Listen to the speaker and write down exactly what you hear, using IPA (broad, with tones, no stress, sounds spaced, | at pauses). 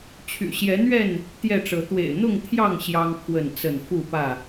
t͡ɕʰ y̰˨˩ ɕ j ɛ˨˦ n̪ ɥ ɛ˥˨ n | t̪ j ɛ˥˨ ʈ͡ʂ ɤ˨˦ t̪ w ḛ˨˩ ɪ̯ n̪ ʊ˥˨ ŋ t̪ʰ j ɑ˥˨ ŋ ɕ j ɑ˦ ŋ pʰ w ə˥˨ n t͡s ə˥˨ n f u˥˨ p ä˥˨